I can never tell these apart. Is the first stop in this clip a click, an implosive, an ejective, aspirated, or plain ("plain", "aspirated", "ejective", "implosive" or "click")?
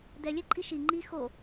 plain